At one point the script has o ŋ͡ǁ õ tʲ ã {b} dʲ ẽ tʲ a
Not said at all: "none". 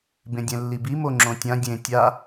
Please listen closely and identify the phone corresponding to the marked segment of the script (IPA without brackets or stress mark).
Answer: none